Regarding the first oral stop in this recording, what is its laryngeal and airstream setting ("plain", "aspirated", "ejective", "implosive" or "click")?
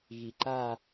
click